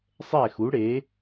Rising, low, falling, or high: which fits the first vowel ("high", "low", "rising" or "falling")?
falling